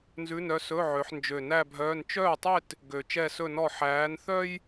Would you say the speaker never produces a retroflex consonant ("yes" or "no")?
yes